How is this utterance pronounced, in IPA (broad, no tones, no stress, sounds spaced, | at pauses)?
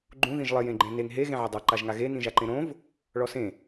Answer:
ɡ͡ǃ ũ ð ĩ ʒ lˠ ɪ j ẽ ɡ͡ǃ ẽ n e ŋ ɦ e ɣ ẽ ʕ ɪ dˤ a ǃ a ʒ ŋ a ɣ e n ĩ ʒ a ǃ ẽ ɾ õ v | ɭ ɔ s ẽ